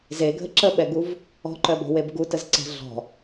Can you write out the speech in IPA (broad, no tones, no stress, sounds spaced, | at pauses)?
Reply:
z e ɡʱ ə ǁ ə ɓ ɛ ɡ u v | ɔ̤ ǃ œ b ɔ̤ w e b ɡ u t ə z ǀ ɛ̤ ɮ ɔ̤